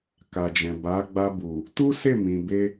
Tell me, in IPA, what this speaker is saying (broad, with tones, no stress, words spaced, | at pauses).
ka˨d͡ʒɛ̃˨ ba˨˦ ɡ͡ba˧bu˨ | tu˦ se˦˨mĩ˨be˧